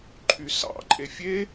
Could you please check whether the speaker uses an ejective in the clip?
yes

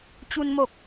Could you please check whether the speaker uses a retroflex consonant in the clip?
no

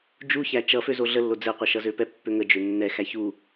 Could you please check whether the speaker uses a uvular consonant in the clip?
yes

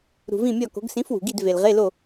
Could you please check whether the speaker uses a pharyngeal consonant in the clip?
no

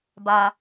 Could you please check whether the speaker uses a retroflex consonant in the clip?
no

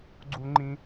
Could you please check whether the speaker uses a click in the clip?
yes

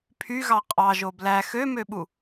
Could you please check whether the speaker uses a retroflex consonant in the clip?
no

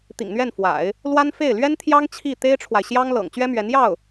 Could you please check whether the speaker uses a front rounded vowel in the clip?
no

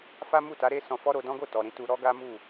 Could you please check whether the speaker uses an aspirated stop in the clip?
no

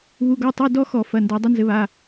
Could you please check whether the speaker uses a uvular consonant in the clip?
no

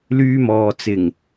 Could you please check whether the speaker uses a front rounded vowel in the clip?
yes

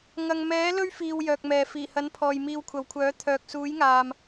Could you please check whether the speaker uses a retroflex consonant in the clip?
no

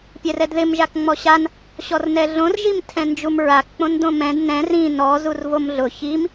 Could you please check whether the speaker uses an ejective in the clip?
no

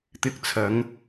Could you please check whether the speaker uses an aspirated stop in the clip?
yes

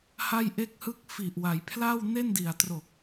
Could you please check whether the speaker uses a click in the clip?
no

